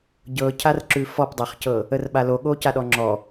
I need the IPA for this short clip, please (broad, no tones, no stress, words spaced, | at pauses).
ɟɤcʰarǁʉ fɔpdˤæχcɤ | ərɓaloɠo caɗɔŋ͡ǁɔ